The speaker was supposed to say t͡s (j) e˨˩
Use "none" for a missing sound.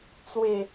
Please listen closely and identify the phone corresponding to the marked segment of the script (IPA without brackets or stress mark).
w